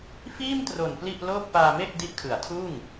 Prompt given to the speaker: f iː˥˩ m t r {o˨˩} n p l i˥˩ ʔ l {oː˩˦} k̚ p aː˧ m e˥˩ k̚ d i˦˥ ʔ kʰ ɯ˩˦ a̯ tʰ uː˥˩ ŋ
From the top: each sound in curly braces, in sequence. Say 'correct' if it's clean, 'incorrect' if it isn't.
correct, incorrect: oː˥˩

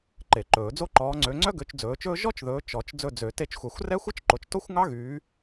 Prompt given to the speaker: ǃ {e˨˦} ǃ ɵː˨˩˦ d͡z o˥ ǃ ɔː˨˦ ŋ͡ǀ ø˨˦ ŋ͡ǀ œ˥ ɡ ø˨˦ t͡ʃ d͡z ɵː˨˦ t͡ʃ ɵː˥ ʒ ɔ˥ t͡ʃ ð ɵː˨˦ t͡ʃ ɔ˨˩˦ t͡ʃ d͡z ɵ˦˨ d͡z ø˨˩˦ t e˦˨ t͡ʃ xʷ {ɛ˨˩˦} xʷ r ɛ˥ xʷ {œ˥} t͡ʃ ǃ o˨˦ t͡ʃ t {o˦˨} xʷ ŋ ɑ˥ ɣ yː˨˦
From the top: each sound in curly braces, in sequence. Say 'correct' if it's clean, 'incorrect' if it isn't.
incorrect: e˨˩˦, correct, correct, incorrect: o˥

